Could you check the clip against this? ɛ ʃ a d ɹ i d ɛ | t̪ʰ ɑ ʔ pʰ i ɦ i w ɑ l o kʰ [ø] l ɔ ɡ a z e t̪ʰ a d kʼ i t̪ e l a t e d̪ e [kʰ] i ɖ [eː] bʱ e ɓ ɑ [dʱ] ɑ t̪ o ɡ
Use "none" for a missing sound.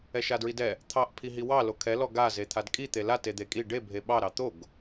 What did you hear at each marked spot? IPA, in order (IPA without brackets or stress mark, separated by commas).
ɛ, kʼ, e, ɾ